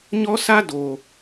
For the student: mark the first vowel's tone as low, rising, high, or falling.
high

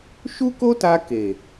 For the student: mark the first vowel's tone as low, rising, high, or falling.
high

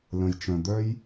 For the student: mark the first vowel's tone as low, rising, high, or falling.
low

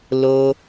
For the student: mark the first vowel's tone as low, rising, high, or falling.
low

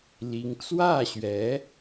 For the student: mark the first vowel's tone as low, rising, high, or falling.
rising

